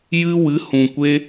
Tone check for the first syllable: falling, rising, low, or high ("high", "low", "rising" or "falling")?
high